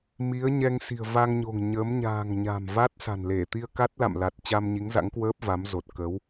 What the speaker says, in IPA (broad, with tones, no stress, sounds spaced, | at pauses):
m i˨˦ ə̯ ɲ ɛ˧ ŋ s i̤˨˩ ə̯ v a˧ ŋ ɲ o̤˨˩ ŋ ɲ ə˨˦ m ɲ a̤ː˨˩ ŋ ɲ a̤˨˩ m v a˦˥ t̚ s a̤˨˩ n l e˧˩ t̪ i˧ ə̯ k a˦˥ t̚ l a̰˧˨ m l a˨˩ t̚ t͡ɕ a˧ m ɲ i˨˦ ŋ z a̰˧˥ ŋ k w əː˦˥ p̚ v a˨˦ m z o˨˩ t̚ k ə˨˦ w